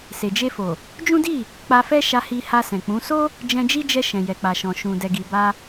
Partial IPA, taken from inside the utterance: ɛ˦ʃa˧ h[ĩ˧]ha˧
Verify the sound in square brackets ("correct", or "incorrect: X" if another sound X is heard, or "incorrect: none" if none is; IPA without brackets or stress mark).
incorrect: i˧